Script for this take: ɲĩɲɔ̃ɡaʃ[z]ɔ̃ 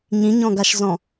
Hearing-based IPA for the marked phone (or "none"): z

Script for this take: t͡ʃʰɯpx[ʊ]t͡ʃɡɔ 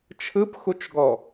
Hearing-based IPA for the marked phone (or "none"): u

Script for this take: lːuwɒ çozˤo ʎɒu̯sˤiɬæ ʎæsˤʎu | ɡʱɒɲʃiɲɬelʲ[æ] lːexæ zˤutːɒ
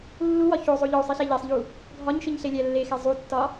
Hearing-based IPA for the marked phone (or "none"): æ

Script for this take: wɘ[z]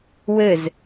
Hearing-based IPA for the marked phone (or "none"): z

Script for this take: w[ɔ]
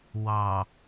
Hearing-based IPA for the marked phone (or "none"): ɑ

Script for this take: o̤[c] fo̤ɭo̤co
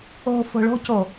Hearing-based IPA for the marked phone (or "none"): none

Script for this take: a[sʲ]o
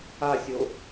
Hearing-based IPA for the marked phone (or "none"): sʲ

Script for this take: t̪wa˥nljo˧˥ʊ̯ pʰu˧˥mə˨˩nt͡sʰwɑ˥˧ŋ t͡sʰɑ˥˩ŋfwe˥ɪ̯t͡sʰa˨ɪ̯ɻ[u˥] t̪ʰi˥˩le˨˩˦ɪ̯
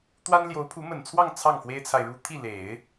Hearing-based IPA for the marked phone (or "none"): u˥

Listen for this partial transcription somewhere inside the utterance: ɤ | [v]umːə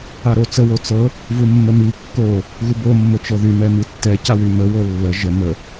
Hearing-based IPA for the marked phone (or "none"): v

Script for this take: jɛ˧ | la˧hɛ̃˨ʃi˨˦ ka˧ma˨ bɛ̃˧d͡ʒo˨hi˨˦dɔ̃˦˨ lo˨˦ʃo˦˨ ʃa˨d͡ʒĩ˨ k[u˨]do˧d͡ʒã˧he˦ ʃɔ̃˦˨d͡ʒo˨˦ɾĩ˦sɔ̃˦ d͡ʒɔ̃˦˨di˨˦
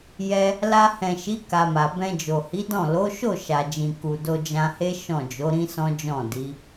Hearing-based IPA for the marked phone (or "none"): u˨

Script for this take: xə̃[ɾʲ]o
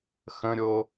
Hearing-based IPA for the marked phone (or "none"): ɾʲ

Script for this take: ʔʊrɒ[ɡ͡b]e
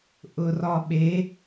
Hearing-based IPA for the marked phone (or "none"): ɓ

